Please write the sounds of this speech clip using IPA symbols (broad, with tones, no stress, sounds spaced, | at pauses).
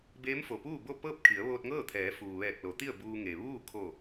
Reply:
b eː˧˥ m f o˩ p uː˥˨ b o˥˨ p ɤː˥˨ p̚ kʰ i˩˧ ə̯ ʋ oː˧ t̚ ŋ ɤː˥˨ t̪ʰ ɛː˩˧ f uː˩ ʋ ɛː˧˩ k̚ l o˩˧ t̪ i˥˨ ə̯ b uː˧ ŋ e˩ ʋ uː˥˨ kʰ o˧˩